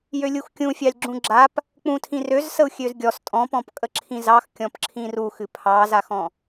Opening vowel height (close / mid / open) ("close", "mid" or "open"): mid